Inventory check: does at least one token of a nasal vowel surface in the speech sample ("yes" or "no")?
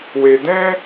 yes